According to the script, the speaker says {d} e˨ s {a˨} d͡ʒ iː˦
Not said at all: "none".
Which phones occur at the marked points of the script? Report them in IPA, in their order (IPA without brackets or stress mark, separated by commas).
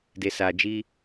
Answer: d, aː˨